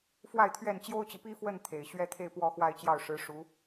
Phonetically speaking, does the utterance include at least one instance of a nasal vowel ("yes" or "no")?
no